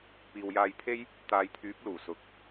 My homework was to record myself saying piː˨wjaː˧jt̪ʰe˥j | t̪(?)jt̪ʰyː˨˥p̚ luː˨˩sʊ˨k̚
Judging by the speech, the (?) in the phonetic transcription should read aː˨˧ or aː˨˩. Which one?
aː˨˧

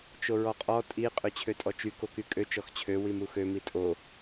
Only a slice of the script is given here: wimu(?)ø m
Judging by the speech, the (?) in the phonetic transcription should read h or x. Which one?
x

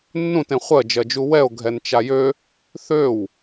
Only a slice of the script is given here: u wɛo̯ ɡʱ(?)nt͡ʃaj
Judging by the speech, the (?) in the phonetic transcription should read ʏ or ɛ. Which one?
ɛ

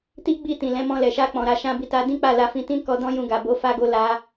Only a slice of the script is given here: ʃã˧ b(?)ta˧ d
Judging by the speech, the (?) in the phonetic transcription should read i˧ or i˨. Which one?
i˧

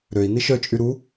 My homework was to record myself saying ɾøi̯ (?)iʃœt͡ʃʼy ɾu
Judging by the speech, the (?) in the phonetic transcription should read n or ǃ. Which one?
n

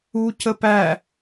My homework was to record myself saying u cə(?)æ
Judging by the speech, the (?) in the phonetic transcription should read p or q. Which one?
p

